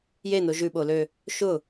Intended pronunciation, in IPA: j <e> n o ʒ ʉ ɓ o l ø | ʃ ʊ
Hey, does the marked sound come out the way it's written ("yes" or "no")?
yes